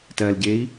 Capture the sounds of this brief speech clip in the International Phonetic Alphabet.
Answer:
t ɜ l ɟ e i̯

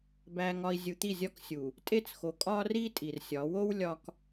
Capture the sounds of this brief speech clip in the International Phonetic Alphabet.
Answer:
b æ˨ ŋ ɒ˨ i̯ zʲ u˨ t̪ i˦˨ zʲ ɒ˦ k sʲ u˨ | tʼ e˦ t͡s x o˨ kʼ ɒ˦ r i˦ tʼ i˨ r sʲ ɒ˨˦ w o˦ w lʲ ɒ˨ k

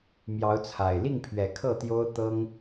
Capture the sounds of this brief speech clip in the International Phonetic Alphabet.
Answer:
m j ɑ˨˦ ʊ̯ t͡sʰ a˨˩ ɪ̯ l i˥˨ ŋ pʰ ɥ ɛ˨˦ kʰ ɤ˥˨ t̪ j o˦ ʊ̯ t̪ ɤ˦ ŋ

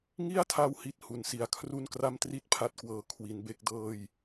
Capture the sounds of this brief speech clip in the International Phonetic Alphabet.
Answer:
ŋ i˥˩ a̯ tʰ a˧ w h i˨˩ t̚ h u˨˩ n s i˨˩ a̯ kʰ r u˥˩ n k r a˥˩ m t r i˥˩ t̚ pʰ a˦˥ t̚ k w ɤː˨˩ kʰ w i˩˦ n b e˦˥ k̚ d ɤː˥˩ j

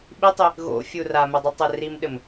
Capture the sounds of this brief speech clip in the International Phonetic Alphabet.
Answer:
ɓ i tˤ i | ɣ o̰ fʲ u r a m ɘ dˤ ɨ tˤ ɘ r i m ɗ ɘ m

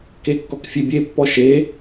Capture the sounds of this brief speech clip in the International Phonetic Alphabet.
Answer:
k e kː ɔ k fʲ e bʲ e pː ɔ ʃ e

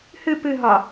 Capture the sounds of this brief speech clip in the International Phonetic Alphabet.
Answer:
h ɨ p ɨ ɦ ɒ

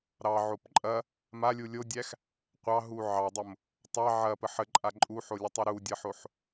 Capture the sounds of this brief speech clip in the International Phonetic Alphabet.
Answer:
ɾ ɑ ʕ o p ǃʼ ɐ | m a lʲ u lʲ o dʲ æ x | qʷ ɑ ɦ u ʕ ɑ dˤ o m | tˤ ɑ ʕ ɐ p ə ħ ə ǃʼ a ǃʼ u ħ o lʲ ə tˤ o ɾ u dʲ ɐ ħ o ħ

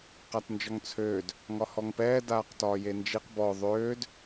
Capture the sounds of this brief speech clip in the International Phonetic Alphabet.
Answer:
q a t n d͡ʒ ɒ ŋ t͡sʰ øː d | ŋ ɒ h ɔ ŋ p ɛː d aː q t ɒː j e n d͡ʒ i q b ɔ ðˤ øː d

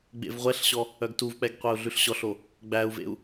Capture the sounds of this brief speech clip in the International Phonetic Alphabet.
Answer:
ɡ͡b ḛ v ʁʷ ɛ ɬ ɕ ɔ | œ ɡ t u v k͡p ɛ ɡ qʷ ɛ u̯ ɮ ʉ ɬ ɕ ɔ ɬ o | ɡ͡b æ u̯ v ḛ u̯

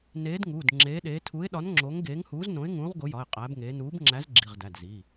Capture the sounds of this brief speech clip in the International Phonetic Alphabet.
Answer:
n eː˨˥ d ŋ uː˩˧˩ d ŋ͡ǁ eː˨˥ ɗ eː˨˥ tʰ u˨˥ ɪ̯ ɗ ɒ˨˥ n ŋ͡ǁ o˨˥ ŋ ɡ eː˨˥ ŋ h uː˨˥ z n õ˨˥ ɪ̯ ŋ ũː˨˥ ʁ ɡ o˨˥ j ɒ˩˧˩ ɪ̯ qʼ æː˨˥ b ŋ eː˨˥ n uː˨˥ b ŋ͡ǁ æ˨˥ z ɡ͡ǁ i˩˧˩ ʁ d æ˩˧˩ d z i˩˧˩

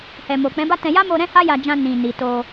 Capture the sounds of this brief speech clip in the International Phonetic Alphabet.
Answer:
h ɛ˨ m o˨ k͡p ɛ̃˨˦ b a˦ t ɛ̃˧ j a˦ m o˧ ɾ ɛ̃˦ h a˦ j a˧ d͡ʒ ã˧ n ĩ˨ n i˨ t o˧

